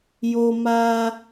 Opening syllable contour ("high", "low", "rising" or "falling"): high